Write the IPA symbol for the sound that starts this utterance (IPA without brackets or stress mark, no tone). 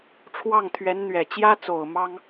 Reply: ʈ͡ʂʰ